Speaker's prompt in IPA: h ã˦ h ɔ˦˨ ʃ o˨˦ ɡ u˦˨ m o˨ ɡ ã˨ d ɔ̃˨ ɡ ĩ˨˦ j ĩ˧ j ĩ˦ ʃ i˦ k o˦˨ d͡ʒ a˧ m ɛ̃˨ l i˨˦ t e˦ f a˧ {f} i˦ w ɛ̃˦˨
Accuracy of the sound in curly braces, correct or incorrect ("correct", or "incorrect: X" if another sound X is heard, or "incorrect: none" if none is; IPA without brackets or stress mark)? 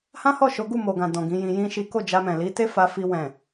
correct